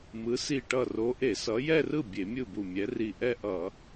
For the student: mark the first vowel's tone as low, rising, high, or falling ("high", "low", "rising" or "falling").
rising